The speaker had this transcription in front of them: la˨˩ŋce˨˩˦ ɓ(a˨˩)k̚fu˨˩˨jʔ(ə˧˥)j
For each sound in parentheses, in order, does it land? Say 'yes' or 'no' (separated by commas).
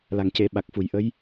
yes, yes